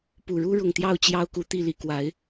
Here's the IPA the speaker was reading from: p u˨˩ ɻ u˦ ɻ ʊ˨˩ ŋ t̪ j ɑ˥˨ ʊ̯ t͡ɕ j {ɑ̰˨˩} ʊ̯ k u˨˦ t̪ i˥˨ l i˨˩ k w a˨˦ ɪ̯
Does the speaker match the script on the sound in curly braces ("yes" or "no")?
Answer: no